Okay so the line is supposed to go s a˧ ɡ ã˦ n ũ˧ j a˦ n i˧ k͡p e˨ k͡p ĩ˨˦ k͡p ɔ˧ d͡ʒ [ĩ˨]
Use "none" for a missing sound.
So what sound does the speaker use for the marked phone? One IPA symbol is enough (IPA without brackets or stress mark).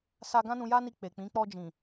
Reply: ĩ˨